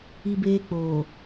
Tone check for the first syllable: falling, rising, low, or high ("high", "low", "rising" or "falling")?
high